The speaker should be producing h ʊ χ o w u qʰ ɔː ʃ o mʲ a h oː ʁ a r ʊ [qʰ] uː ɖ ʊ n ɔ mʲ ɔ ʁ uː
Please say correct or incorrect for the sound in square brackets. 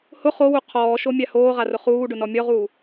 incorrect